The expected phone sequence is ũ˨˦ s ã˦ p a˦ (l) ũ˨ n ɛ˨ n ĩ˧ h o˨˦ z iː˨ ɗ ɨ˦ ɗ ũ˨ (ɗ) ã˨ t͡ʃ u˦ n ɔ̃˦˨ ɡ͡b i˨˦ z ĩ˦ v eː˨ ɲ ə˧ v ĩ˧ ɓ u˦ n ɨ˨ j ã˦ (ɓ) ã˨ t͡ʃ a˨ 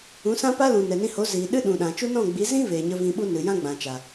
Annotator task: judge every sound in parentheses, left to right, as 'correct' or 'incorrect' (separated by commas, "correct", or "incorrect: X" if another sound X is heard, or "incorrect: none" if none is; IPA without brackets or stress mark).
correct, correct, incorrect: ɡ͡b